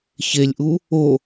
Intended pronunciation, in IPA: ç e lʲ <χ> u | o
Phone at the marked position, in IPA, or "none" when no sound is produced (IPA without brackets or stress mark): ʔ